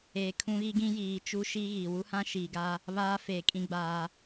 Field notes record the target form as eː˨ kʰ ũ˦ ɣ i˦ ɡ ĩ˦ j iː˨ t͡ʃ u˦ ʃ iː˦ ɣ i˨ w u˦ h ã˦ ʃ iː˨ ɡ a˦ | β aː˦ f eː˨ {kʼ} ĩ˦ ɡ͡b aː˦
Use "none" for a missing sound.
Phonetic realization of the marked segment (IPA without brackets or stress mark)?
kʼ